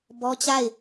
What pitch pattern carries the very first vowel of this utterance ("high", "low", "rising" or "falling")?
high